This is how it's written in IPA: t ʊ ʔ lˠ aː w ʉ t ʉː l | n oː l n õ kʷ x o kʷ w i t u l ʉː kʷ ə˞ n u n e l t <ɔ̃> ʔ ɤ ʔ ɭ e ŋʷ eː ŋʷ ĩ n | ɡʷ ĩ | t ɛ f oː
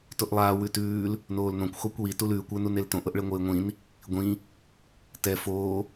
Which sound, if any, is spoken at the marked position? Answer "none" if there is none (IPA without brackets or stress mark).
õ